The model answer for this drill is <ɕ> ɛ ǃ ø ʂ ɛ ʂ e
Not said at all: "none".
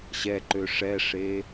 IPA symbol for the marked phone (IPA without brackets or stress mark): ɕ